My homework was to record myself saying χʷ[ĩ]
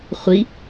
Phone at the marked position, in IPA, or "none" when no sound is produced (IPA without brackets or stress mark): i